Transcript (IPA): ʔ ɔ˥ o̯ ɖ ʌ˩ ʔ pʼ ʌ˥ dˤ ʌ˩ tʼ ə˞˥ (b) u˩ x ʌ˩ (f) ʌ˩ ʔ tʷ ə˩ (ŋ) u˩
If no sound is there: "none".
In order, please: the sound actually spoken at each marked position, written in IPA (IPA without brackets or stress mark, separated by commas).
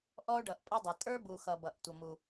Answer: b, b, m